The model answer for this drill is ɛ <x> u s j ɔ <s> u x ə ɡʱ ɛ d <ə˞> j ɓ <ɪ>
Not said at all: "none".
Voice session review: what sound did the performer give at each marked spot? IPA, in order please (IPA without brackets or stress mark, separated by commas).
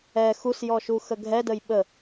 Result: x, ʃ, ə, ə